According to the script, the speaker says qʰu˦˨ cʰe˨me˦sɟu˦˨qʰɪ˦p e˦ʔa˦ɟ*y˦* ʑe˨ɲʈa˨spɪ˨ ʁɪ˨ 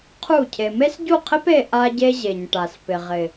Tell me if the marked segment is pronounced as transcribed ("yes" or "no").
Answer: no